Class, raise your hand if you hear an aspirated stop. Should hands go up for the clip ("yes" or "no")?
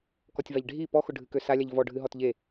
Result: no